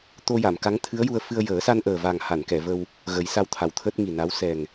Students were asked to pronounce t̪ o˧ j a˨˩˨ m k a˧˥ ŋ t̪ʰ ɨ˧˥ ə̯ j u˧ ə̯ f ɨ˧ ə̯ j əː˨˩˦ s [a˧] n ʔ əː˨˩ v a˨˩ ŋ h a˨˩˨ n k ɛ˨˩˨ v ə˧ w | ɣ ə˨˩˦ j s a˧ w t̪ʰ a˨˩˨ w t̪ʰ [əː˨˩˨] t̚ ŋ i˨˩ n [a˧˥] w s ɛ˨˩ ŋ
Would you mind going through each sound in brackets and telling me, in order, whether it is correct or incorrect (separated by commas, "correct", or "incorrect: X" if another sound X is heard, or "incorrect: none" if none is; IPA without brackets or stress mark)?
correct, incorrect: əː˦˥, correct